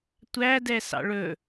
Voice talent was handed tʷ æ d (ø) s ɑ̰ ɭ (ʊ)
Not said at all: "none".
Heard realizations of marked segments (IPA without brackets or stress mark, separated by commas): ɛ, ɵ